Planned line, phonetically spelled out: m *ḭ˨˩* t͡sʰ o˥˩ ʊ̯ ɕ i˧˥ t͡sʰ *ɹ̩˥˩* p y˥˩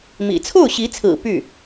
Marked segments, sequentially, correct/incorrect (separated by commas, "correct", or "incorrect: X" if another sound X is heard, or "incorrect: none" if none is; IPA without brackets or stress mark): correct, incorrect: ɹ̩˨˩